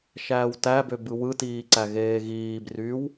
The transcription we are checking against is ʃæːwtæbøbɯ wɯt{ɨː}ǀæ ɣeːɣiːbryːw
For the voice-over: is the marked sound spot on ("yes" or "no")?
no